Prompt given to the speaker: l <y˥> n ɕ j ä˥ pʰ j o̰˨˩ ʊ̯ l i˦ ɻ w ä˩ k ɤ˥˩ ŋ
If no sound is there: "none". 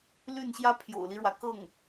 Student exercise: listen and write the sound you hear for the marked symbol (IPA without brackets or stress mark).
y˥˩